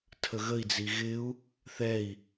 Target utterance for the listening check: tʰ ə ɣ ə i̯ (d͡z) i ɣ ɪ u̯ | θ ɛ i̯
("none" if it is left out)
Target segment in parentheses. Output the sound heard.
d͡z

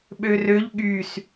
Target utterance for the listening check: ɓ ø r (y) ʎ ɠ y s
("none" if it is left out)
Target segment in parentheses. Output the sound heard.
ø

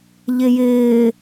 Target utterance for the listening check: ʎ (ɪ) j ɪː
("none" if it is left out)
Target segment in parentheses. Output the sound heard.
ɪ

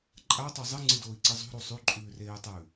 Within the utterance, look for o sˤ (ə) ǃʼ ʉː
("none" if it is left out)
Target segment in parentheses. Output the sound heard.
ʉ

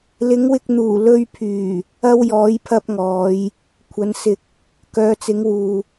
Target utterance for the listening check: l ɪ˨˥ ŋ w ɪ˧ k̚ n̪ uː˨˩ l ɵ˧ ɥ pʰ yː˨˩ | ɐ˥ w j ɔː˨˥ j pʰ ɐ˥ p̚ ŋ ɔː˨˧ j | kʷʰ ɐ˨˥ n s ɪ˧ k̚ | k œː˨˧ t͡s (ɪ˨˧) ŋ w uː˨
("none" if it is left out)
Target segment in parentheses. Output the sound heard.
ɪ˨˥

